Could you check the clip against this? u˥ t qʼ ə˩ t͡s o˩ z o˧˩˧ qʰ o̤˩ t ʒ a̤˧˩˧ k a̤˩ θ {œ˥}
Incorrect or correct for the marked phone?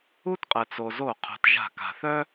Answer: correct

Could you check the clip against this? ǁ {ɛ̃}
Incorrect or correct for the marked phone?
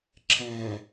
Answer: correct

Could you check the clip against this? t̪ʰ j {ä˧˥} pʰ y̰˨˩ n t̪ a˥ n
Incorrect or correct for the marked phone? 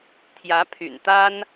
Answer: correct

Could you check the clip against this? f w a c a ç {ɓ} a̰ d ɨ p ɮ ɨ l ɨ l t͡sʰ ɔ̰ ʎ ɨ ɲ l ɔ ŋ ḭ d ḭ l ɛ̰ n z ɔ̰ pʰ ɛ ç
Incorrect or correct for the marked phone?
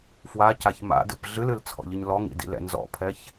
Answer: incorrect: m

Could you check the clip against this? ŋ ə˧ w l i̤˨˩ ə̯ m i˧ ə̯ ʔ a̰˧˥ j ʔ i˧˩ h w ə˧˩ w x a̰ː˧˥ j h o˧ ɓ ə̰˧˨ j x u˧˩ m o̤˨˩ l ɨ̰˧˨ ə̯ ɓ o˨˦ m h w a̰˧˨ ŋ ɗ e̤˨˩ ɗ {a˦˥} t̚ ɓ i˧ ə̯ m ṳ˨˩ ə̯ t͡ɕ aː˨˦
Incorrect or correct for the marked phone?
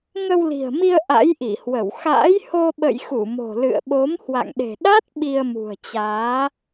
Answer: correct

